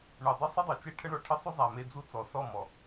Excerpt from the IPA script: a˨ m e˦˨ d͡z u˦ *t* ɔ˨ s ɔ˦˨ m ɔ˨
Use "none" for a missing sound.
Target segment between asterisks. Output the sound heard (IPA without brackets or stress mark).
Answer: t͡s